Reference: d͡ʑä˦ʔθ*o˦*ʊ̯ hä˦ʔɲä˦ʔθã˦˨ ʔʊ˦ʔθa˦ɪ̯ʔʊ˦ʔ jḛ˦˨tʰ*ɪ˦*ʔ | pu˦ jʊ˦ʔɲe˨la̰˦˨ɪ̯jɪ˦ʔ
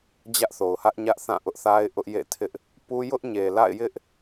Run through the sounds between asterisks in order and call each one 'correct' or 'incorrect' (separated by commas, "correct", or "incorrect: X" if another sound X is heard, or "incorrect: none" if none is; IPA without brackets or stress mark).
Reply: incorrect: o˨, correct